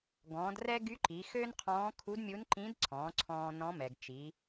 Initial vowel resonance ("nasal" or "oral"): nasal